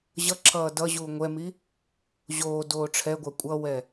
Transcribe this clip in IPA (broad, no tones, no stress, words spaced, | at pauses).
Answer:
ʑʌ ǁʰʌːdʌʑuː ŋʷɛmi | ʑoː doːʈ͡ʂʰɛɡʷa kʷʼʌwɛ